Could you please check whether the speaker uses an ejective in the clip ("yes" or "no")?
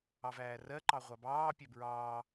no